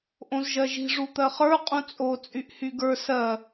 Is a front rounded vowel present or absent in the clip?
present